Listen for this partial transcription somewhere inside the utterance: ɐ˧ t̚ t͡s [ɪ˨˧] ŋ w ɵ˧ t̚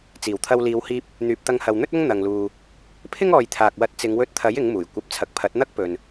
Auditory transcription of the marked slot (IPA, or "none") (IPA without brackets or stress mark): ɪ˨˧